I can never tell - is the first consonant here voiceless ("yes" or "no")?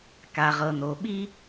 yes